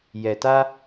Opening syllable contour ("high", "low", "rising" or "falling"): low